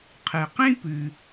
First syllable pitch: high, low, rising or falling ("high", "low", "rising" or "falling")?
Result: low